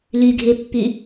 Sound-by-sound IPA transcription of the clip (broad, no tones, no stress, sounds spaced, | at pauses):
l y ɡʱ e pː y